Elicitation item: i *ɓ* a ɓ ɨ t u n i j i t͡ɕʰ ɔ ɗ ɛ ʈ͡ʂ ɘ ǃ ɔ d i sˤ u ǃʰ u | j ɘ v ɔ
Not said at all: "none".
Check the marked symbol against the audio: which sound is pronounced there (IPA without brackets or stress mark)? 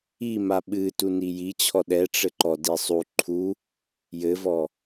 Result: m